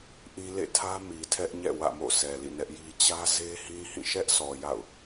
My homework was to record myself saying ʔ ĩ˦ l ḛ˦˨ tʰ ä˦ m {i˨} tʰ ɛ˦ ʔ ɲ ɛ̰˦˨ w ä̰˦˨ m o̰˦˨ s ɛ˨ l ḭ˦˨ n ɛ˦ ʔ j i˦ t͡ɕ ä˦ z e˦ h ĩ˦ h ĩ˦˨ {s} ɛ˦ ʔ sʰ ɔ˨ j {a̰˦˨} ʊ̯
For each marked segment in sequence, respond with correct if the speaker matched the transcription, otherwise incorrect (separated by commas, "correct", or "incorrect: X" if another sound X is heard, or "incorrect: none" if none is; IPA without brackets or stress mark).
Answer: correct, incorrect: ʃ, correct